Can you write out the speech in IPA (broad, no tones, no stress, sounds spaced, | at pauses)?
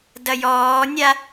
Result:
d ɐ j ɔː nʲ a